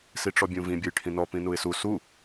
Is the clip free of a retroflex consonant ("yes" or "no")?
no